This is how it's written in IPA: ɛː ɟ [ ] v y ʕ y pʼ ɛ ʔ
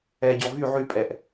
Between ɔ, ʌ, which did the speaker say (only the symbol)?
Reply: ɔ